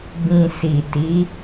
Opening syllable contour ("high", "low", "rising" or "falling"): low